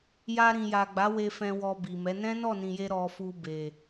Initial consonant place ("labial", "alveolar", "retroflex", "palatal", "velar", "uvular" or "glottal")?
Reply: palatal